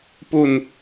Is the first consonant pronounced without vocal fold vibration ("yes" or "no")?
yes